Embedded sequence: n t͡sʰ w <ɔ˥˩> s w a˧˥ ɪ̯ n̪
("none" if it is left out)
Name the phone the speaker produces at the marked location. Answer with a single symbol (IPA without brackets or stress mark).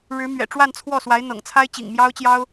ɔ˥˩